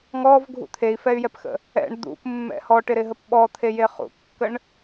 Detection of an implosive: present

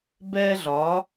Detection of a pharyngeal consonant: absent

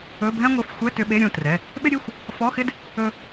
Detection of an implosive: present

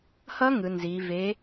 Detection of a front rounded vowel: absent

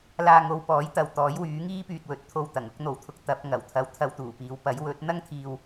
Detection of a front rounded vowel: present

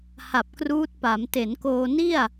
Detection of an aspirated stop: absent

